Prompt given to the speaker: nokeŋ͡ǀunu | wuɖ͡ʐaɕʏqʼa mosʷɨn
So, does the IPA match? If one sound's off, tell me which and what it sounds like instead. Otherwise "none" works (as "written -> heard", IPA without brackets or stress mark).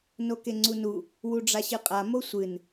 ʏ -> ɨ